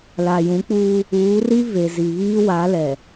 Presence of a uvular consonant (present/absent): absent